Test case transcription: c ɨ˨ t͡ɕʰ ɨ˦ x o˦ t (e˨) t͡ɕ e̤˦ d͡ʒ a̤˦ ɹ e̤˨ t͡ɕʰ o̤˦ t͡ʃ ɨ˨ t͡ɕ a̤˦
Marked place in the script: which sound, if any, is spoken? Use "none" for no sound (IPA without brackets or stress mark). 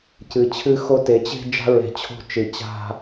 e˨˦